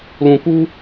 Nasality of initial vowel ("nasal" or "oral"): nasal